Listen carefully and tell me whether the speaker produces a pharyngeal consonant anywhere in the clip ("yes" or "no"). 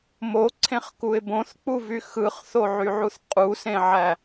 yes